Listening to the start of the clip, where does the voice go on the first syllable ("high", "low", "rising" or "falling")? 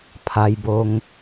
low